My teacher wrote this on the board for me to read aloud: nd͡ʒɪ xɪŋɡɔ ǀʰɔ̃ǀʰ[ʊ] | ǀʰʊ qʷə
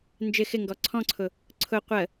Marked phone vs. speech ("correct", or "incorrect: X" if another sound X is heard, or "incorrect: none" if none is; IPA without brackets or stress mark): correct